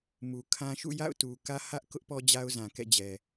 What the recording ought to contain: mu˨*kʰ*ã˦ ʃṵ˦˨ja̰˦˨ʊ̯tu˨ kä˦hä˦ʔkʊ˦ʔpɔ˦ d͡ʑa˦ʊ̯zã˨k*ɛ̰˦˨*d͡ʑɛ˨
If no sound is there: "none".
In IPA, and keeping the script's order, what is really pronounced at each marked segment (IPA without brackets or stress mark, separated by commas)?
kʰ, ɛ̰˦˨